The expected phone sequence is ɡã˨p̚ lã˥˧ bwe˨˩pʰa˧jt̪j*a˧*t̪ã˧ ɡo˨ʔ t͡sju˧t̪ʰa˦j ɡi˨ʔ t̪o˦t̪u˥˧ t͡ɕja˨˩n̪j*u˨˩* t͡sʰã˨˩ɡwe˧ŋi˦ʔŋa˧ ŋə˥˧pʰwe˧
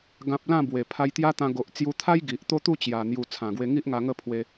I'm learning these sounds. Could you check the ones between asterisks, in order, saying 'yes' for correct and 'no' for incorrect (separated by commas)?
no, yes